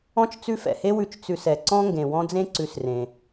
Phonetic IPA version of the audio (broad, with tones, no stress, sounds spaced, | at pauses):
ɔ̃˥ t͡ʃ t͡s ʉ˦ f ɛ̰˩ h e˥ w ʉ˨ t͡ʃ t͡s ʉ˨ s ɛ˩ ǀ ɔ̃˦ ŋ ɡ ẽ˩ w ɔ̃˥ d͡z ẽ˥ ǀ ʉ˨ s r ẽ˩